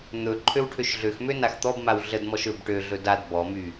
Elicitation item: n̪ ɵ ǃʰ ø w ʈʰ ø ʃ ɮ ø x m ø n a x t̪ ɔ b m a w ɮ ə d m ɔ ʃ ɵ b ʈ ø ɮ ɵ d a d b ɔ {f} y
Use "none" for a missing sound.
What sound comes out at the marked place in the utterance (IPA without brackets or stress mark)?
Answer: m